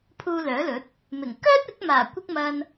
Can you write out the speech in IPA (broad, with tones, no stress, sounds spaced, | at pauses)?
pʰ uː˧ l œː˨˥ l ɵ˨˥ t̚ | m ɪ˨˩ ŋ k œː˥ t̚ ɪ˨˥ k̚ m aː˨˩ kʷ ɪ˧ k̚ m ɐ˨ n